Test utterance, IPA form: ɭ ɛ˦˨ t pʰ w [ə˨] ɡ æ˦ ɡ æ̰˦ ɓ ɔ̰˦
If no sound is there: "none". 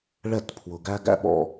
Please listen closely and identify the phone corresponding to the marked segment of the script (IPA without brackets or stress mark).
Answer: ʊ˨